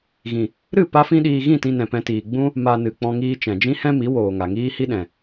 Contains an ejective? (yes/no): no